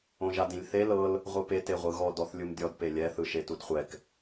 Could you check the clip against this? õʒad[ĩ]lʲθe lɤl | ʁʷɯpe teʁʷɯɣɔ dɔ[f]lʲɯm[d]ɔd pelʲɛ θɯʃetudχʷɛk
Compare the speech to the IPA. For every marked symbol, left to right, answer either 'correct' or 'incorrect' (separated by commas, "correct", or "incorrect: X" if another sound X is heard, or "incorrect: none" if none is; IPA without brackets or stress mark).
correct, incorrect: θ, incorrect: dʲ